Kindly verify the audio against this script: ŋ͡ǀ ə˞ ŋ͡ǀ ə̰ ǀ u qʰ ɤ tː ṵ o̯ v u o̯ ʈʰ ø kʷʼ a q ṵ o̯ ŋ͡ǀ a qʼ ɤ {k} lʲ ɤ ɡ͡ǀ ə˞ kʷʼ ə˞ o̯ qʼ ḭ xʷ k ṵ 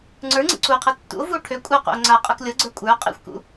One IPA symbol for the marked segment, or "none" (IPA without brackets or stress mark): k